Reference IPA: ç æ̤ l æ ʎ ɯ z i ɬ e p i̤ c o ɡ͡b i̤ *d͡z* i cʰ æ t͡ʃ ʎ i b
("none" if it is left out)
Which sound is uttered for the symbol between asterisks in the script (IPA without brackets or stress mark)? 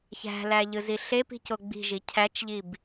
ʒ